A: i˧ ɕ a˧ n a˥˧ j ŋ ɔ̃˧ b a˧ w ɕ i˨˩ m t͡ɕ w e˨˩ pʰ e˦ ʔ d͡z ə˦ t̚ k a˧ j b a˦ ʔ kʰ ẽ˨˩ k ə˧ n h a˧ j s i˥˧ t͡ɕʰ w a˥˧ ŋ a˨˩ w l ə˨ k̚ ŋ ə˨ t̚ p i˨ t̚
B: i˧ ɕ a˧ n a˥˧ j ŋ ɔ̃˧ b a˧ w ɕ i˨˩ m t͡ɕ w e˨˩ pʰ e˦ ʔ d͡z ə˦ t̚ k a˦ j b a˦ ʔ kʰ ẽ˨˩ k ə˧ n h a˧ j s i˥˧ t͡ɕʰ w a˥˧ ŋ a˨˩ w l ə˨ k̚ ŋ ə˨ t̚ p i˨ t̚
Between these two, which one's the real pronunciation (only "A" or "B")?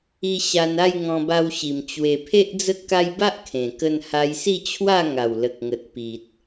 B